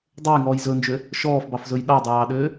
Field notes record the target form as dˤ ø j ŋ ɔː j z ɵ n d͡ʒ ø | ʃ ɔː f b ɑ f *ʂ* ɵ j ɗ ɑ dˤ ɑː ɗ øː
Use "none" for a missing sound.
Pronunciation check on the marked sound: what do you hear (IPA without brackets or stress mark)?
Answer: z